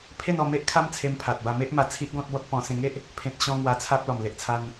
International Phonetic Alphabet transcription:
pʰe˥˧nɔ˧me˦ʔ kʰa˦mt͡sʰe˧mpʰa˨t̚ba˧ me˦ʔ ma˧ t͡sʰi˦ʔɡɔ̃˦t̚bɔ˦t̚ pɔ̃˧ sẽ˧ŋe˦ʔ | pʰẽ˨t̚ɕɔ̃˧ ŋwa˧t͡sʰa˦p̚ lɔ˨˩mle˨ʔt͡sʰa˧n

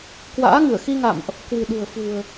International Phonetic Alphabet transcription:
kwa̰ː˧˥ŋɨ˧˩ə̯xi˧ŋa̰˧˨mʔ | kwɨ̤˨˩ɗṳ˨˩ə̯ fṳ˨˩ə̯

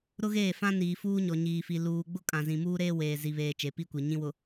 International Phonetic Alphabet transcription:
ɾʊ˦ɣeː˦˨fã˦ niː˨fuː˦ɲɔ˨ ɲiː˨fi˨ luː˨ ɡ͡bʊ˦kʼã˨zĩ˨ muː˦ɾeː˦ weː˨ zi˨βeː˨ t͡ʃe˨˦pi˦kʷi˨ ɲĩ˦wʊ˨

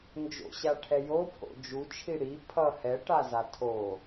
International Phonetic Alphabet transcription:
nd͡ʒo̰ɕaʈʰɛ jopʰo̰ d͡ʒut͡ʃʰi ɽi pʰʌ hɛʈaza tʰo

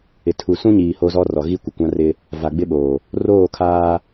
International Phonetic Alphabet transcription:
ɪ˨ tʰu˨sũ˦ɲiː˨ ho˦zɔ˦ rɔ˨ɣi˦kʷɪ˨kʷã˦ rɪ˦ | va˨ɡ͡bɪ˦ɓoː˨ | roː˦˨kʰaː˦

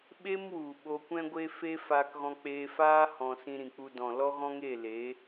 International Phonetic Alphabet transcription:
ɓe˦mwu˨ ɓo˧kʷɛ̃˦ɡʷe˦ fe˦ faː˧kɣɔ̃˧ k͡peː˧faː˦ hɔ̃˧ sĩ˧ɾĩ˨k͡pu˧dɔ̃˨ lɔ˦ɣɔ̃˦ŋe˦˨le˨˦

